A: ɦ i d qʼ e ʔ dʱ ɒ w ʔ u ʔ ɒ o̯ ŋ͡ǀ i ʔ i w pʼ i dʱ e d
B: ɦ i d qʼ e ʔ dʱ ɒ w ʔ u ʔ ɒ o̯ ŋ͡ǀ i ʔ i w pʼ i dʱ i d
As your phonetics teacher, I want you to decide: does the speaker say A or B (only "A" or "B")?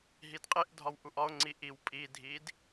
B